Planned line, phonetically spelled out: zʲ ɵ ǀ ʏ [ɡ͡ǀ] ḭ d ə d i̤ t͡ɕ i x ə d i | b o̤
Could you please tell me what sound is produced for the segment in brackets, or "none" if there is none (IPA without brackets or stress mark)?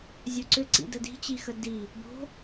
ǀ